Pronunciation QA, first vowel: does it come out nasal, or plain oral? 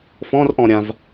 nasal